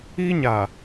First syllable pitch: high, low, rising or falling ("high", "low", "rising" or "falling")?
high